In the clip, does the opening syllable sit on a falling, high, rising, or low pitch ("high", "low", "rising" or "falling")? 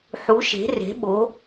rising